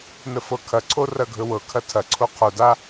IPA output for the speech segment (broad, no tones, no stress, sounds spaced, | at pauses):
n ə f ɤ kʰ ɐ ǀʰ o r ɐ ɡʱ ɵ w ɤ kʰ ɐ tʰ ɐ ǀʰ o qʰ o d a